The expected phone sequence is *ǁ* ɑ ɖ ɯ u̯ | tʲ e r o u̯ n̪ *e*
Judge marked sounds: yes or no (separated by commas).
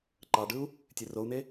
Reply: no, yes